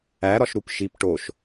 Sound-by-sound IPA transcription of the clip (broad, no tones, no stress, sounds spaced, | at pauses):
æ ɾ ɒ ʃ ɾ u p ʃ i p ʈ o ʃ